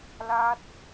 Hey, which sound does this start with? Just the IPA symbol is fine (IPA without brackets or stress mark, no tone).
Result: l